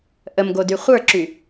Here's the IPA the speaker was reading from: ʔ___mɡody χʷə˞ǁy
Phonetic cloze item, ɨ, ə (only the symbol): ə